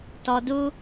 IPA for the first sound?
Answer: t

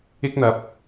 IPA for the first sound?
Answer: ɪ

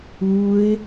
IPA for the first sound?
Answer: u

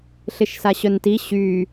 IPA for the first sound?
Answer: ɬ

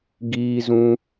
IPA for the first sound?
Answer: ɡ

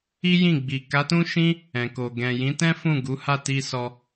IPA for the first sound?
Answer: i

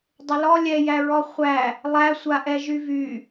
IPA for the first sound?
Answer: dˤ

